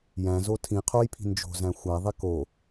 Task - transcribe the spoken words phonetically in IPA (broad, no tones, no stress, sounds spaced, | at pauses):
j æ̃ z o tʰ ĩ qʰ o j pʰ i̤ n d͡ʒ o̤ z æ̃ xʷ æ ðˤ e k o